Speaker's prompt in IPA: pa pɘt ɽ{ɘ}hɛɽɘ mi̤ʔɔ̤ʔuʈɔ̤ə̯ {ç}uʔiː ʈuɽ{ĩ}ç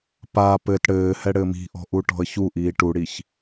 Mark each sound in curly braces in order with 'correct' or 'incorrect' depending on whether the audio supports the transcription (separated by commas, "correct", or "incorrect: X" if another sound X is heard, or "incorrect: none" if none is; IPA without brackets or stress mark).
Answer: incorrect: ɘː, correct, incorrect: i